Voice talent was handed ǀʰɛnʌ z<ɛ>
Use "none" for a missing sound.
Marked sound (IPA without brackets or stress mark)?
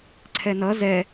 ɛ